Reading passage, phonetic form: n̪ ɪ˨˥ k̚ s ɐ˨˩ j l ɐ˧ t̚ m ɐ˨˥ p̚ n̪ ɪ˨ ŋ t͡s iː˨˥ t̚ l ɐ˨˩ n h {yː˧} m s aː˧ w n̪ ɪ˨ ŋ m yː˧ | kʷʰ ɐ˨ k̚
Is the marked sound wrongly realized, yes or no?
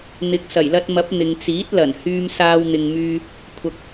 no